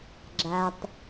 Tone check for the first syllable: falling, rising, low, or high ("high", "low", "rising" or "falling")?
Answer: low